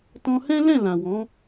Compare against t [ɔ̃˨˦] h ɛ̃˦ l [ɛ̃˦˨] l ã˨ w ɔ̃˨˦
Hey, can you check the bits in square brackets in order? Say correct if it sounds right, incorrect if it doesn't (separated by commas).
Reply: incorrect, correct